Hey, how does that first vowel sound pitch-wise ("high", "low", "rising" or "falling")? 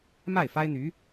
falling